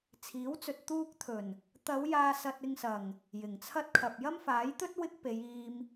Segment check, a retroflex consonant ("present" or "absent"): absent